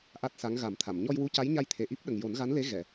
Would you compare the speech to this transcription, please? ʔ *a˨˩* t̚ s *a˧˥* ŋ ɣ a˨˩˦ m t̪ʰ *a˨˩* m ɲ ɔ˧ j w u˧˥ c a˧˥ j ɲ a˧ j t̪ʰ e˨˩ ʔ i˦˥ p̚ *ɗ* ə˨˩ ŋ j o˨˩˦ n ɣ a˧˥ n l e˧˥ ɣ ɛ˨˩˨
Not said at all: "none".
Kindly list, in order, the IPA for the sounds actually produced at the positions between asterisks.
a˦˥, a˧˥, a˨˩˨, ɗ

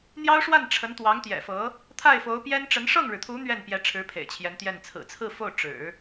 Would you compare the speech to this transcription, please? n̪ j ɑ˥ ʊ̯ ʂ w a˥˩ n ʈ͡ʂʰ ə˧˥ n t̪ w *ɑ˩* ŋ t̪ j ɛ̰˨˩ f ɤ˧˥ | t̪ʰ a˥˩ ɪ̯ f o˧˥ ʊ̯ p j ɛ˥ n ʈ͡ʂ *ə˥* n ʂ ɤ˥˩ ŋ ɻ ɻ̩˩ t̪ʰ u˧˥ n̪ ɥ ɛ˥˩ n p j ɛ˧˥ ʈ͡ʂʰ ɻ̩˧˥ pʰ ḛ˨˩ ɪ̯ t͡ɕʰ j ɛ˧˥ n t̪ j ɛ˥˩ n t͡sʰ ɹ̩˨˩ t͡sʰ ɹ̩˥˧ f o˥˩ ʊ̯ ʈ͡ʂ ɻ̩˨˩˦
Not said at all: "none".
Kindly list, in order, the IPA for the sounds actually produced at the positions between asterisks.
ɑ˧˥, ə˧˥

